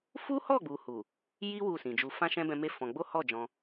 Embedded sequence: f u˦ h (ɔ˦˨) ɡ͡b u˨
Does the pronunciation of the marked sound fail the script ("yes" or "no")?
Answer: no